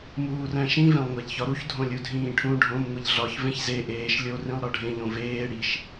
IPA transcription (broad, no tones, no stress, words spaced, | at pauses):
muːræ̃ʃĩ vẽlˠŋʷæʎçɒɾuç dʱõlʲudʱĩːʈʰũ ɖʱõm ŋʷiʎɮɒç vẽçze ʔeːʃ lʲo rĩlˠɾɒɖʱẽ ʎõveː ɽiʃ